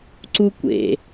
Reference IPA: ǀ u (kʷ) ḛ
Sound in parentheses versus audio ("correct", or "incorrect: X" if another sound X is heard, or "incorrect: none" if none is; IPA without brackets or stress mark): correct